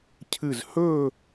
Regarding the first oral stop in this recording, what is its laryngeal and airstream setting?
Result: aspirated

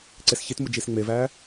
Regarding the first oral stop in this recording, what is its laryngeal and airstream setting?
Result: click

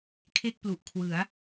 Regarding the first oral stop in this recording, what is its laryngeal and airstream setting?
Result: aspirated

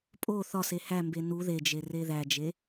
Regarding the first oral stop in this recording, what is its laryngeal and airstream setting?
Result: ejective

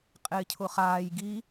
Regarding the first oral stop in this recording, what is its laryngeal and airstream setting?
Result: ejective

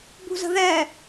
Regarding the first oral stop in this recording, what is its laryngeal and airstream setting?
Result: plain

